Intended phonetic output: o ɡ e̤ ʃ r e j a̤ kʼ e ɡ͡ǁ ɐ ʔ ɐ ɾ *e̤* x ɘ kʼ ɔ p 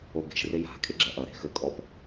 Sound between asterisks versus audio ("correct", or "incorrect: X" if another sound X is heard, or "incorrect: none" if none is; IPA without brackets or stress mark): correct